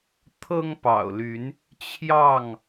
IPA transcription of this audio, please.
t̪ʰ ɤ˦ ŋ p ɑ̰˨˩ ʊ̯ l y˨˦ n | t͡ɕʰ j ɑ˥˨ ŋ

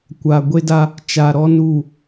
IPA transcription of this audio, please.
kʷ a˨ ɡʷ e˦ d a˦ | t͡ʃ a˨ ɾ ɔ˦ n u˦˨

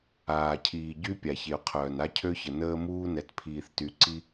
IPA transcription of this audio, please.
aː˨ cʰ iː˨ ɟ y˦ pʲ a˨ ç e˨ o̯ qʰ œː˨ n a˦ cʰ ø˦ ç ə˨ n əː˦ m uː˦ n ɛ˨ t pʰ iː˨ θ t y˨ ǀ i˦

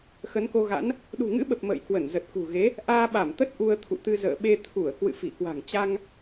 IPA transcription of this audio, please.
x ə˨˦ n k o˧ ɣ a̰˧˥ n | ɗ ṳ˨˩ ŋ ɨ̰˧˥ ɓ ə˨˩ p̚ m ə̰ː˧˨ j k w ə˧˩ n z ə˨˩ t̚ k ṳ˨˩ ɣ e˨˦ | ʔ aː˧ ɓ a˧˩ m t̪ ə˦˥ t̚ ʔ u˧ ə̯ t̪ʰ ṵ˧˨ t̪ ɨ˧ z ə̰ː˧˨ ɓ e˧ t̪ʰ u˧˩ ə̯ k w ɨ̰˧˨ f i˧˩ k w a̤˨˩ ŋ t͡ɕ a˧ ŋ

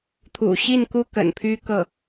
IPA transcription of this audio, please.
t̪ʰ ṵ˨˩ ɕ i˥˩ n k u˥ k ə̰˨˩ n pʰ y˥ k ɤ˥˩

